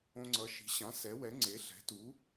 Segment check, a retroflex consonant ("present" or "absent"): absent